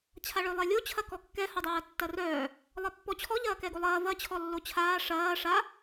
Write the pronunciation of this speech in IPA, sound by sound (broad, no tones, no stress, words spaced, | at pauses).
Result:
t͡ɕʰaɭœlˠɛlʲo t͡ɕʰɐkɔkːɛ hodˤɐːtːɐrœː | lˠɐpːɔt͡ɕʰɔ ʎɐːkɛɡolˠɐː vɐ t͡ɕʰɔlːot͡ɕʰaː ʂɐː ʂa